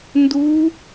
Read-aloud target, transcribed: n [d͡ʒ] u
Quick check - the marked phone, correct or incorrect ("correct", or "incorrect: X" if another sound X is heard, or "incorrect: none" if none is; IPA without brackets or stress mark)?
incorrect: d